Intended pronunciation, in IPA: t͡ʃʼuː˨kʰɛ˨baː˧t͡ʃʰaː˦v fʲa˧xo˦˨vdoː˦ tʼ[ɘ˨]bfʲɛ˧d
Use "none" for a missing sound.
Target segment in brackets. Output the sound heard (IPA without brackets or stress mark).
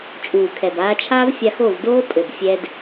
ɘ˨